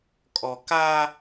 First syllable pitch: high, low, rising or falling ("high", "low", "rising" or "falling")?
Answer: low